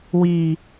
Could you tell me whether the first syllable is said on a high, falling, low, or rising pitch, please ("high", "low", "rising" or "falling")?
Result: low